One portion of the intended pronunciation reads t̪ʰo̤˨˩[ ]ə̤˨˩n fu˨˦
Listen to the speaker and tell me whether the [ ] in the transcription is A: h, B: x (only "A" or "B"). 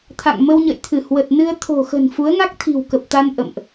B